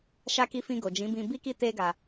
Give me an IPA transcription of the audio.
ʃ a˧ k i˧ f ĩ˧ ɡ o˨ d͡ʒ ĩ˨˦ b ĩ˧ b i˦ k i˦ t e˦ ɡ a˧

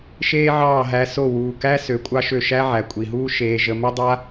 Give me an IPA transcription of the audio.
ʃ eː˦ ʕ ɑː˦˨ ɦ æ˧ s o˦˨ w uː˨ k æ˦ s ø˨ kʷʼ ɑ˦ ʃ ø˦˨ ʃ æ˦ ʕ æ˨ kʷʼ i˨ ɦ uː˦ ʃ eː˧ ʒ ə˧ m ə˦ dˤ a˦

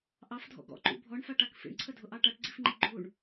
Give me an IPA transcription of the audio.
ʔ ɑ f dʱ ɔ̰ ɡ ɔ̰ ǃ ṵ bʱ ɔ ɳ f a ʈ a k f ḭ ɳ ǀʰ ə dʱ ʊ ʔ ɑ ʈ a ʈ ɡ͡ǀ i f ŋ͡ǃ i ɡ͡ǃ u ɳ

